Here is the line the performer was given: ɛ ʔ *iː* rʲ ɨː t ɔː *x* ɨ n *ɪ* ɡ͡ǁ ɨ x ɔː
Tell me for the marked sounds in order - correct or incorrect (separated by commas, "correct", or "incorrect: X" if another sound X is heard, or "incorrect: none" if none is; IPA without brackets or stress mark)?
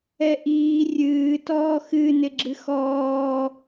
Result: correct, correct, correct